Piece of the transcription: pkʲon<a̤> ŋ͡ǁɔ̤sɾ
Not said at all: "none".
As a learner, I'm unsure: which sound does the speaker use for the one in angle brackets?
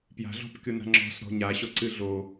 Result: a̤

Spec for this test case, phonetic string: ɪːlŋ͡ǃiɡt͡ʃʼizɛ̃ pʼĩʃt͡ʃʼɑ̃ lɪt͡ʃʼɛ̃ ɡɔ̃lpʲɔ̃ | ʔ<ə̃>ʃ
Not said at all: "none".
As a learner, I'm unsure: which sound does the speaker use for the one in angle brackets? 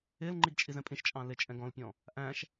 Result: æ̃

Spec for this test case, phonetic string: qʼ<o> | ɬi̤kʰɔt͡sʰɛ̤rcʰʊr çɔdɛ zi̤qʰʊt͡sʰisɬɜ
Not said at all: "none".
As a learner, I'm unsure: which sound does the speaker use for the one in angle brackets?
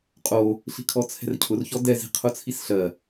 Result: o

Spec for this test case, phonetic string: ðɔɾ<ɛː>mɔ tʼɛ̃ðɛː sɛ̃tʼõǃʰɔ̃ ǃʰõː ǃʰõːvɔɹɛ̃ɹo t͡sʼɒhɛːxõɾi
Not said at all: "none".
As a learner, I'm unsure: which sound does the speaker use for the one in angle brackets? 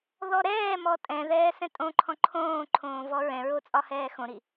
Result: ɛː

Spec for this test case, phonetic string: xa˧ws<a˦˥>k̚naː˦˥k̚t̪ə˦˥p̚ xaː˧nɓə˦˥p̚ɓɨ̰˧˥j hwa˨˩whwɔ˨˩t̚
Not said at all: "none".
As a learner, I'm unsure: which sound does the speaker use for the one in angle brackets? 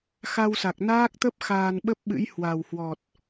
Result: a˨˩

